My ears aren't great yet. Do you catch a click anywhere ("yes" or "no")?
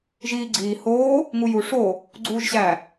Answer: yes